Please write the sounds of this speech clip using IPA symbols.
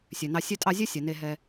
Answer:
sʲ ø˩ n ɑ˨ sʲ ø˦ tʼ ɑ˦ zʲ ø˥ sʲ ɛ˩ n e˨ ɦ ɛ˨

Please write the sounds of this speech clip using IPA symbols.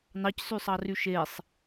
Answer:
n ɑ c s y sˤ ɑ r y ʃ e sˤ

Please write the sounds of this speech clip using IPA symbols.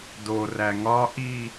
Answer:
d o r æ ŋ ɒ ʔ i

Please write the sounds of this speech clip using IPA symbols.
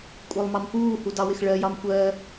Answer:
kʷʼ ɜ lˠ m ɑ m p uː h u d ɑ w ɪ x ɭ ɜ j ɑ m kʷ ɜ

